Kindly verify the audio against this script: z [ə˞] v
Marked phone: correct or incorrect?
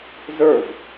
correct